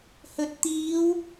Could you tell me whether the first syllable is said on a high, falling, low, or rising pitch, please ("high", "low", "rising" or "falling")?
low